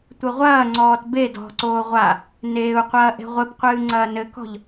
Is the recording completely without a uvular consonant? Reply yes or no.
no